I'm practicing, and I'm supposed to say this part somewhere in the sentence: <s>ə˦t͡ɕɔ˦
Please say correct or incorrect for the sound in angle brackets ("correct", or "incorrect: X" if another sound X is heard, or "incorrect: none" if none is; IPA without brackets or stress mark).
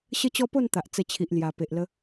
incorrect: ɕ